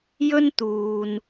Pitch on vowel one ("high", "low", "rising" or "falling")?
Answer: high